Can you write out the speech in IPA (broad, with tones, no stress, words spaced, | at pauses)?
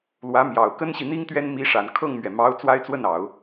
lwä˧˥mjɑ˨˩ʊ̯ kə˥nɕi˨ n̪i˥ŋt̪ɥɛ˥n mi˧˥ʂa˨˩n kʰɤ˥˩ŋmɥɛ˩ mɑ˧˥ʊ̯ t͡swa˥ɪ̯t͡swə˥˩nɑ˨˩˦ʊ̯